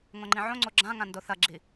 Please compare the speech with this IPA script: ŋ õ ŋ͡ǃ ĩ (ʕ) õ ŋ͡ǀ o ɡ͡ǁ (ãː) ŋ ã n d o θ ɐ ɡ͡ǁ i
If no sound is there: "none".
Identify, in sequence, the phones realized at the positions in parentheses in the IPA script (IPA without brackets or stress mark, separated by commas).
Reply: ʕ, ã